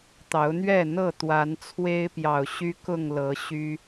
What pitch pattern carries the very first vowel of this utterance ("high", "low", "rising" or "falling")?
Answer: rising